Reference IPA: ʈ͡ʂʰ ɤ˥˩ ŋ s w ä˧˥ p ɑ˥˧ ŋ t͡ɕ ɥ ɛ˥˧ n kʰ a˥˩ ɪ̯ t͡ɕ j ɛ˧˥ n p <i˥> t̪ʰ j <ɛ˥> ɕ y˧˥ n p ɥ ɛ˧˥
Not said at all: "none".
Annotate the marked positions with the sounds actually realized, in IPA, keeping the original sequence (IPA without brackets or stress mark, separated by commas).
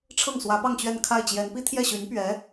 i˥, ɛ˥˩